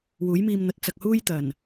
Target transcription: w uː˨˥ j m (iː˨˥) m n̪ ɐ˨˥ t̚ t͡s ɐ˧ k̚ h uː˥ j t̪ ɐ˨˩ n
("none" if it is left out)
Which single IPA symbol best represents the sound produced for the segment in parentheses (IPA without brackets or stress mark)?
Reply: iː˧